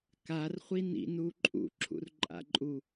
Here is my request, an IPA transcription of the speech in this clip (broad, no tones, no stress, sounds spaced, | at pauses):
k a r χʷ i n ḭ n uː ǃʼ ṵ ǁʰ ṵ r ǃʼ a̰ ǃʼ u